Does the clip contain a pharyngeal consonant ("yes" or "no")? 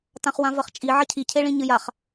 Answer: yes